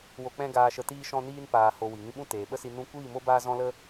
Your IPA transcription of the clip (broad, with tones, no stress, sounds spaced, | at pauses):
w o˨ k͡p ɛ̃˦ ɡ aː˧ ʃ ə˧ t iː˧ ʃ ɔ̃˧ n iː˧ n p aː˨ h o˨ w i˨ ŋ ĩ˧ ɓ ũ˦ t eː˨ ɓ ə˦ s i˧ n ũ˦ kʷ iː˦˨ m o˦ b aː˧ z ɔ̃˧ l ə˧